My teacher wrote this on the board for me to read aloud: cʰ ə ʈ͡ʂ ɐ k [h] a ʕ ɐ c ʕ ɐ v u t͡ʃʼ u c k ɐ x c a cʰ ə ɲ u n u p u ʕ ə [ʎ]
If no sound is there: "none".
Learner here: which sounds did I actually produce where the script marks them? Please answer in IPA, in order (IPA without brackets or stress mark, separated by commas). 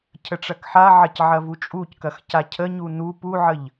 ħ, ʎ